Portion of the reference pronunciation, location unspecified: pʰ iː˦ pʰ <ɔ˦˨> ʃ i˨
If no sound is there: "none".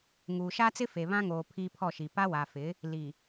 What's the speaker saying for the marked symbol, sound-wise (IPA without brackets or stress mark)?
ɔ˦˨